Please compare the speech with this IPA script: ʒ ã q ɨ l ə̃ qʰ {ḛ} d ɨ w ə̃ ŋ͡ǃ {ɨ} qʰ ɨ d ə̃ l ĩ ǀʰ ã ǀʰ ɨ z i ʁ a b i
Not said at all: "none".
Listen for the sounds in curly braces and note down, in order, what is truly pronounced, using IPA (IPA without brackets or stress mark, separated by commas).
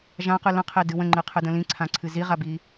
e, ɨ